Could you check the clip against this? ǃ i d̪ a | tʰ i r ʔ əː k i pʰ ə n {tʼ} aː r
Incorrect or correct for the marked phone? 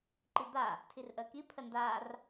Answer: incorrect: d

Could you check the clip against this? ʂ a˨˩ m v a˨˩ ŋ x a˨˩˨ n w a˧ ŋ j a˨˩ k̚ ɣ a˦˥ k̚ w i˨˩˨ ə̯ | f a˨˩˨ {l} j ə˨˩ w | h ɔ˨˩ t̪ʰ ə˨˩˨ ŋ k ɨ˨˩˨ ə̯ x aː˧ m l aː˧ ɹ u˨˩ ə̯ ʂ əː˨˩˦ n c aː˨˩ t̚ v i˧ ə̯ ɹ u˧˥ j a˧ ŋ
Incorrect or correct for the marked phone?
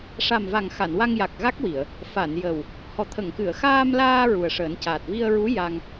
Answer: incorrect: n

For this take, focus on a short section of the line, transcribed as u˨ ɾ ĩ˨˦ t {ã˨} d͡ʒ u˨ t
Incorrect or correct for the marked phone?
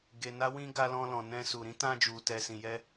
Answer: incorrect: ã˧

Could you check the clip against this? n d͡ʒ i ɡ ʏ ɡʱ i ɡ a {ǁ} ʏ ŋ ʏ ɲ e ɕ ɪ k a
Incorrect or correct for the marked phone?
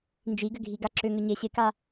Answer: correct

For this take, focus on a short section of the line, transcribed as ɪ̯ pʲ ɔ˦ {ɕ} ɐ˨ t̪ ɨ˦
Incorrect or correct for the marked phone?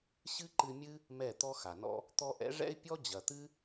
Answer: incorrect: d͡ʑ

